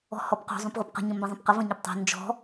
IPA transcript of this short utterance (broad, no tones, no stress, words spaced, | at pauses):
ɔ̤hɔpqo̤ zˤõpʁʷɤpqə̤ ɲə̃mbə̃zˤə̃pqə və̃ɲɘptˤo̤ nd͡ʒɔ̤